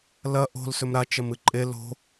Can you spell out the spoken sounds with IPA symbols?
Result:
l ɐ ʔ o̤ l s ɵ m ɾ a t͡ʃ ɐ m ɨ ǃʼ e l o̤

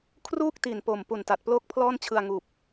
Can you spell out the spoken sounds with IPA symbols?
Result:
kʰ r uː˥˩ k̚ t i˨˩ n p o˨˩ m p u˨˩ n t a˨˩ t̚ p l oː˥˩ k̚ pʰ l ɔː˥˩ n t͡ɕʰ ɯ˧ a̯ ŋ uː˨˩ p̚

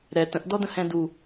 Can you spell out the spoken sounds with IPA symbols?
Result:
ɾ ɛ t ə̃ ʔ d ɔ d ə̃ h ɛ̃ d u

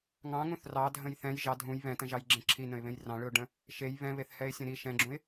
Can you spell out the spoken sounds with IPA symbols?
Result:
ŋ ɑ̃ ŋ ũ θ r ɑ dʱ ə̃ j θ ɛ̃ j ʒ ɑ dʱ ũ j β ɛ̃ t ə̃ ʒ ɑ j ɡ͡ǁ ẽ ǁʰ i n ə̃ ɪ̯ β ẽ j r ɑ̃ ɭ ɯ ʊ̯ ɖ ə̃ | ʃ e j β ɛ̃ β e θ h ɛ ɪ̯ sʲ ə̃ ɾ i ʃ ɛ̃ ɡ͡ǁ ũ ɪ̯

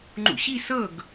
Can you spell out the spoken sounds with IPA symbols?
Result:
ŋ͡ǃ ṵ ɕ i s ɤ ɡ

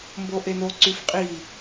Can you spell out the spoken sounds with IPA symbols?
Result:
m b o ʔ e n o ǀ y f qʼ i

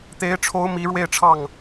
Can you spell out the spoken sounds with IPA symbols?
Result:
t̪ e˧˥ ɪ̯ ʈ͡ʂʰ o˧˥ ʊ̯ m i˧˥ ɻ w e˥˧ ɪ̯ ʈ͡ʂʰ ɑ˥˩ ŋ

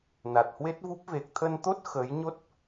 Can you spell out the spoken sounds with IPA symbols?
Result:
n a˨˩ t̚ h w e˦˥ t̚ v u˦˥ p̚ v e˨˩ k̚ t̪ʰ ə˧ n t̪ o˦˥ t̚ x ə˨˦ j ɲ o˦˥ t̚

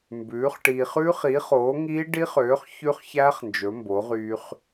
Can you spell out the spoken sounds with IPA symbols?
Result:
m b ʉː˨˥ χ ʈ iː˧ χ ʉː˦˥ χ iː˨˥ χ oː˨˥ ŋ iː˦˥ ɖ i˦˥ χ øː˨˥ χ ç ʉ˦˥ χ ç æː˦˥ χ n d͡ʒ ɵ˨˥ m b o˨˥ ʁ yː˧ χ

